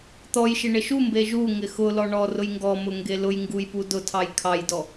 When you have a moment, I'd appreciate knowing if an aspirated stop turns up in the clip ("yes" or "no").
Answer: yes